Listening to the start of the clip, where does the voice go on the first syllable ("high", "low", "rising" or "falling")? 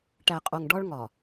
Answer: low